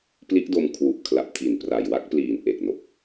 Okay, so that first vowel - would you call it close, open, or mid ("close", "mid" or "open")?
close